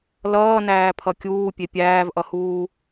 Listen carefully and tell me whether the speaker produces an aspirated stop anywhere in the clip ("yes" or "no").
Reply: yes